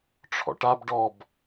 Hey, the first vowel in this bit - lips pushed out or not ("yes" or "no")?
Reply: yes